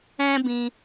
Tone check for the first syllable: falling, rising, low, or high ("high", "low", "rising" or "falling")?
high